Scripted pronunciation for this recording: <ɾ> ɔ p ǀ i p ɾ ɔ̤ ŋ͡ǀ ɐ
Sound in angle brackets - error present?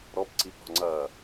no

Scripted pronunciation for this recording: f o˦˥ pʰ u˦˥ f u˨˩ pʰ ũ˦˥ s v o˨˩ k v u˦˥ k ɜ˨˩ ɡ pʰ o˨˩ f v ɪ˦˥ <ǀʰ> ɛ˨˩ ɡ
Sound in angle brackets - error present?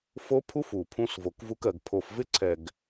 no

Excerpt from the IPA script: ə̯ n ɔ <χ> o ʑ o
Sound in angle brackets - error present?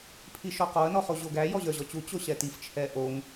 no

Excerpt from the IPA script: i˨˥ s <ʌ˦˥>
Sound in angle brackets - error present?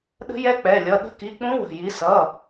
yes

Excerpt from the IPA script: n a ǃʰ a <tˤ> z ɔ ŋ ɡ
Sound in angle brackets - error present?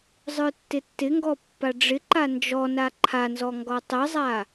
yes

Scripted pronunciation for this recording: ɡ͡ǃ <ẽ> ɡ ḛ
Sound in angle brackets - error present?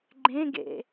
no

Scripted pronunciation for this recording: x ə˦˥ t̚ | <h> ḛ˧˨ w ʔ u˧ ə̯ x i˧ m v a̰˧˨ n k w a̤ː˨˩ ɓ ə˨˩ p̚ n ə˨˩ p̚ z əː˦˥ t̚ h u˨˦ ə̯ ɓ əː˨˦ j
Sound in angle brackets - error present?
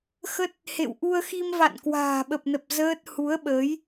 no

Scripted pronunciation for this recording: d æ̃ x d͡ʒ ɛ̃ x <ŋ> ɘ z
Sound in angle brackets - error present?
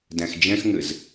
no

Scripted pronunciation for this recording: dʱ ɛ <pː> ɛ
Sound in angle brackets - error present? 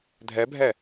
yes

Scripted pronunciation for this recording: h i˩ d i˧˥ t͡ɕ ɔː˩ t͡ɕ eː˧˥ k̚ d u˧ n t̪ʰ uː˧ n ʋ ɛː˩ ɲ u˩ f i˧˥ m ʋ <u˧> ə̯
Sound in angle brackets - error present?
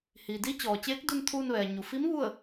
yes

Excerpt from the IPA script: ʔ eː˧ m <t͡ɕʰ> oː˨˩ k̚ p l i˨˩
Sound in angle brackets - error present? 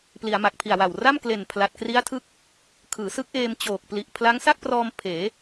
yes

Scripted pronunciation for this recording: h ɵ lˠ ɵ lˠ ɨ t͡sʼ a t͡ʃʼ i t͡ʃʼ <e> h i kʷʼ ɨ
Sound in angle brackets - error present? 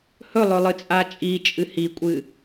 yes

